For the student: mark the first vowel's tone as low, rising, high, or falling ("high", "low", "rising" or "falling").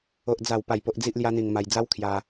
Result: high